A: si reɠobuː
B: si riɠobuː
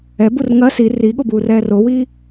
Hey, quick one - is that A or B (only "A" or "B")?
B